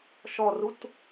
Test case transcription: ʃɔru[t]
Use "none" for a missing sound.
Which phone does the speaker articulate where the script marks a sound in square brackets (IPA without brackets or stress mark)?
t